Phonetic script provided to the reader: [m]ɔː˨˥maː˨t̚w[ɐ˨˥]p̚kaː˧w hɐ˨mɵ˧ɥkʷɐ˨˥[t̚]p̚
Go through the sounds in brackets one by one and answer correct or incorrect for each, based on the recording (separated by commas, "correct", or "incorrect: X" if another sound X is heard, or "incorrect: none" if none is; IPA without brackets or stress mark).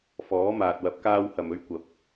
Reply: incorrect: f, correct, incorrect: none